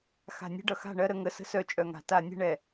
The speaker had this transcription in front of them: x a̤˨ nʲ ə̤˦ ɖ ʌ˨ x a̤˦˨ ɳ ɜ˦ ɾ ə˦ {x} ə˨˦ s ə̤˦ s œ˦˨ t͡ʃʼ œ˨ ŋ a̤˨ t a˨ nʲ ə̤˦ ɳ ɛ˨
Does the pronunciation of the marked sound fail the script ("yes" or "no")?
yes